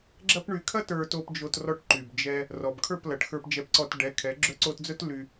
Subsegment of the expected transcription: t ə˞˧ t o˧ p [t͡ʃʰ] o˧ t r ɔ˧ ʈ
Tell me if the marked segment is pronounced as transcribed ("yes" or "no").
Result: no